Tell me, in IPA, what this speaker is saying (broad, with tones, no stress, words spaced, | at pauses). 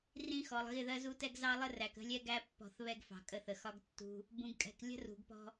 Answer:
rĩ˦xɔ˨lˠ ɣɪ˦˨ðɜ˦zu˦tɛ˦ɡ zɑ˦lˠə˦ræ˨k ə̤˦lʲɛ˦ ɡæ˦pːɔ̤˨˦θ βɛ˦ɡfɑ̤˨kʼə˦˨θə˨ xɒ˦ɡtːṳ˦ | bũ˨ɡkʼɛ̤˨k lʲə̤˦ rṳ˨ɡpɔ̤˦